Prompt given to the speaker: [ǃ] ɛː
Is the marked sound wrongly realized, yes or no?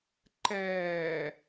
no